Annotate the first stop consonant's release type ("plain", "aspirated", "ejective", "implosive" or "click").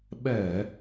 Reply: implosive